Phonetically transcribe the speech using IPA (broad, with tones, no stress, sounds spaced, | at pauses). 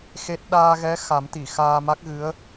x e˦˥ t̚ ɗ aː˧ ɣ ɛ˧˥ x a˨˩˦ m t̪ i˨˩˨ x aː˧ m a˦˥ k̚ ɣ ɨ˧˥ ə̯